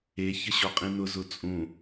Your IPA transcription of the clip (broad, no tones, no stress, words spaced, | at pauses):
e çəɕɔqʼĩnʊ zʊt͡sʼũ